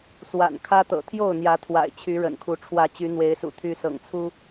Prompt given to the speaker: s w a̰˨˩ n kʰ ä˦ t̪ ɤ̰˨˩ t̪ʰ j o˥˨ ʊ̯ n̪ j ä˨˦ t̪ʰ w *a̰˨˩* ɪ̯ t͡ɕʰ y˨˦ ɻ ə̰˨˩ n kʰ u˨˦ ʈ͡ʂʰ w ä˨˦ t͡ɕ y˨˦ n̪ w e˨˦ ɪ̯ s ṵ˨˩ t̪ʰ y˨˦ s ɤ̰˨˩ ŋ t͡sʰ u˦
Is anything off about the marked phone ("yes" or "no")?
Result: no